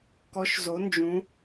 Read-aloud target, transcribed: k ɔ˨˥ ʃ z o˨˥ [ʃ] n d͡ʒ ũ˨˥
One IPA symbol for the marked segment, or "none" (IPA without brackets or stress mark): none